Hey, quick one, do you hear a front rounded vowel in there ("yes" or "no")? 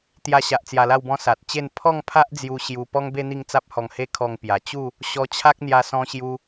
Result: no